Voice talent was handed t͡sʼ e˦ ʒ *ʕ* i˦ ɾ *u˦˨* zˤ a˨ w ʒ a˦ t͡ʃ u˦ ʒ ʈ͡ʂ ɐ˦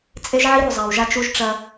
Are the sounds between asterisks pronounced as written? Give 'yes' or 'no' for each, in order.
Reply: yes, yes

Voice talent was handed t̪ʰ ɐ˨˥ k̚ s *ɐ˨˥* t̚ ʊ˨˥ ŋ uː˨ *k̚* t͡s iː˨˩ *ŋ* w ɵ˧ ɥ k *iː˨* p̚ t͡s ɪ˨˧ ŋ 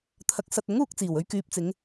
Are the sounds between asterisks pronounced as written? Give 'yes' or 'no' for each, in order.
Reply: no, yes, no, no

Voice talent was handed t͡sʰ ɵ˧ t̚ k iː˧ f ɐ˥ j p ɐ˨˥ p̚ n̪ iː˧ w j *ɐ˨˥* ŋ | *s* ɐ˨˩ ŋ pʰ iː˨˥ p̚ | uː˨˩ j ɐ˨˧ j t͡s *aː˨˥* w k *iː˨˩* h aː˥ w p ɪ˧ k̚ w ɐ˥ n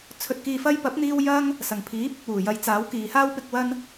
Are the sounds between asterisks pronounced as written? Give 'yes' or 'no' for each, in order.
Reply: no, yes, yes, no

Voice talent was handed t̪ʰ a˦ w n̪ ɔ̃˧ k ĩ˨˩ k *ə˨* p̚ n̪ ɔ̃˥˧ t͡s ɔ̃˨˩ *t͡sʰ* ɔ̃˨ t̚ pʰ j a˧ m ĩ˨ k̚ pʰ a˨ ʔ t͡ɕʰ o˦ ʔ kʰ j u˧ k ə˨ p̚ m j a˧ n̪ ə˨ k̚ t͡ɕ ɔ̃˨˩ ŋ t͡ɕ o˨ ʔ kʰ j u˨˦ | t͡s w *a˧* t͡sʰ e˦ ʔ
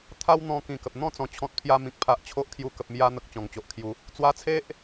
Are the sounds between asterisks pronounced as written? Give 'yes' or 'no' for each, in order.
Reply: yes, no, yes

